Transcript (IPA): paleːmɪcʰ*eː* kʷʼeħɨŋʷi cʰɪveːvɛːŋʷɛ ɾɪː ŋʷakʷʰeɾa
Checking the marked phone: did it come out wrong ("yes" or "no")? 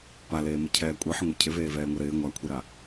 yes